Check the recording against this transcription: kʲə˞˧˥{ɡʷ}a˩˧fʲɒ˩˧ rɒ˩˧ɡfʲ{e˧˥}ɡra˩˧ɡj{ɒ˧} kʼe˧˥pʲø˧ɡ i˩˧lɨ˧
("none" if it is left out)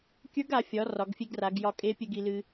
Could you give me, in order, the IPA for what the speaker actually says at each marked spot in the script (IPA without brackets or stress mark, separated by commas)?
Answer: ɡ, e˧, ɒ˧